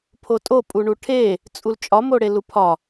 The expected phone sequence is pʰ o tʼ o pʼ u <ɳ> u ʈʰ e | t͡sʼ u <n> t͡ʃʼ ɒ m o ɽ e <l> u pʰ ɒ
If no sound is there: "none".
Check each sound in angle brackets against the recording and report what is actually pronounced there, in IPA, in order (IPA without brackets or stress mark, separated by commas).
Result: ɳ, l, l